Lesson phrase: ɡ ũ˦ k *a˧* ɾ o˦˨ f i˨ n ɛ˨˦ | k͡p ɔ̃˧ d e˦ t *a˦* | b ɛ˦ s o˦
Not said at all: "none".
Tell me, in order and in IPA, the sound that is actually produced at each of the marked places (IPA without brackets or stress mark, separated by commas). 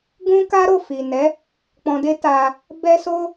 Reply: a˦, a˧